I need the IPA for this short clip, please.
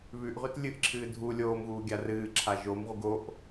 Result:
β ʉ ʔ ʁ ʉ t lʲ ɨ ʔ ǁʰ ɨː dʱ u lʲ oː m ɣ uː ɡʲ a r ɨː ǁʰ a ʒ o m ʁ u ɡ o ʔ

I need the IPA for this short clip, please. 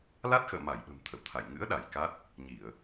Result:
l a˦˥ t̚ x ə̰ː˧˨ m a˧˩ j ɓ ə̤˨˩ m t̪ʰ ə̰˧˨ w t̪ʰ a̰˧˨ j ŋ ɨ̰˧˥ ə̯ ɗ a˧˩ j k a˦˥ t̚ | ɲ i˧˩˨ ə̯

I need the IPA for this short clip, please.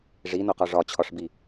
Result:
ʐ i n o q ɒ ʐ ɒ t͡ɕʰ ɒ ʂ b i

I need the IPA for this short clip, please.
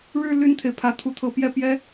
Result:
ɻ ɻ̩˥˧ l y˥˩ n t̪ʰ e˩ ɪ̯ pʰ ä˧˥ t̪ʰ u˧˥ t̪ʰ ɤ˧˥ p j ɛ˥˩ p j ɛ˥

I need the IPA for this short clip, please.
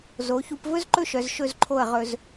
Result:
z o˩˧ ç u˧ p v ɵ˥ z ǃ ɵ˥˧ ʃ œ˩˧ z ʃ ɵ˧˩ z ǃʰ o˧˩ ə̯ ʁ ɵ˧ z

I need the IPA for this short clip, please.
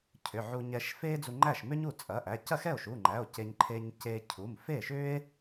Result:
cʰ ʏ˩˧˩ ʕ u˧ ɲ ɛ˧ ʃ f e˥ d͡z u˧ ŋ͡ǃ æ˥˩ ʃ m ʏ˥ ɲ u˥˩ t͡sʼ ɐ˩˧˩ ʔ æ˩˧˩ c ɐ˥˩ x ɛ˥˩ o̯ ʃ u˩˧˩ ŋ͡ǃ æ˩˧˩ o̯ c e˧ ɲ ǃʰ e˧ ɲ c e˧ cʰ u˩˧˩ m f e˥˩ ʃ ʏ˥ e̯

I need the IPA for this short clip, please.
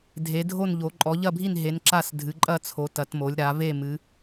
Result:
dʱ e˩˧ dʱ o˦˨ n ʎ o˩˧ ǃʼ ɔ˩˧ ʎ ɐ˦˨ bʱ i˦˨ n ɦ e˩˧ n ǁ a˦˨ s dʱ ɨ˩˧ ǃʼ ɐ˦˨ t͡sʰ o˩˧ t ɐ˩˧ t m o˩˧ lʲ ɾ a˩˧ v e˦˨ m ɨ˩˧

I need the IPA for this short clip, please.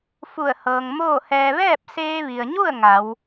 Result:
f u˧˩ ə̯ h ɤː˩ ŋ m oː˥˨ h ɛː˧ ʋ ɛː˥˨ p̚ s eː˧ ʋ i˩ ə̯ ɲ u˥˨ ə̯ ŋ a˩˧ w

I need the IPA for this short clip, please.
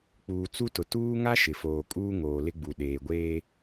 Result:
k͡p uː˨ t͡s u˦ t ʊ˨ t uː˦ ŋ a˦ ʃ ɪ˨ f oː˨ kʼ uː˦ ŋ oː˨ l ɪ˦ ɡ͡b u˨ ɗ eː˨ ɡʷ eː˦

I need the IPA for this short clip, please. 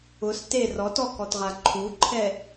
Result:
ʊ s t e r ɔ t ɔ k ɔ t ʁ a ǃʰ u ǃʰ ɛ

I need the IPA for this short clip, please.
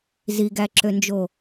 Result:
z i ɡ æ ǁ ø n d͡ʒ o

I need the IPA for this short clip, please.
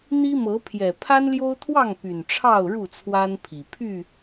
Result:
n̪ i˦ m ɤ˨˦ pʰ j ɛ˨˩ pʰ a˦ n l j o˦ ʊ̯ t̪ʰ w ɑ˥˨ ŋ p y˨˩ n ʈ͡ʂʰ ɑ˥˨ ʊ̯ ɻ u˥˨ t͡sʰ w a˦ n pʰ i˨˩ pʰ y˥˨

